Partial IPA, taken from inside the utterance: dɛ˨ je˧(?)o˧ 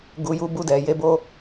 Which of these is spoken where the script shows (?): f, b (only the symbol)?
b